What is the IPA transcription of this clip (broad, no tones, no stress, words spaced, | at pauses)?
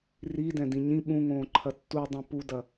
ridɛ̃dĩ ɲĩ ɓũŋõːǃʰɐ tːudˤɛ̃ pudɐ